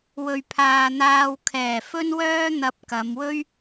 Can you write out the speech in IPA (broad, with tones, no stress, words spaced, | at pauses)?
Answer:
wɵ˨ɥpʰaː˨ n̪aː˧wkʰɛː˨˩fɵ˥nwœː˥ n̪ɐ˧p̚kɐ˨˧mwɵ˥ɥ